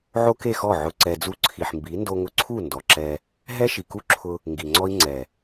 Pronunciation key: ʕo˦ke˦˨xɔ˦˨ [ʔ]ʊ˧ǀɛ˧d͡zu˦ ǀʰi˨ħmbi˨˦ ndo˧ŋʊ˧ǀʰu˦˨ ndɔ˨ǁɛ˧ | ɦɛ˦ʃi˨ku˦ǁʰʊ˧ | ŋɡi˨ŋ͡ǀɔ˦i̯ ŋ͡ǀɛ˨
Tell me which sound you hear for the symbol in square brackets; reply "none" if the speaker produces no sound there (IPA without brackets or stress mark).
ʕ